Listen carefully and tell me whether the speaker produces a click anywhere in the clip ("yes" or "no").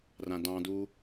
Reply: no